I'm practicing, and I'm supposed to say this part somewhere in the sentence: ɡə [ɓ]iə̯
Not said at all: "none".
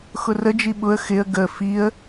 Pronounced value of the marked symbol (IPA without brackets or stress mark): f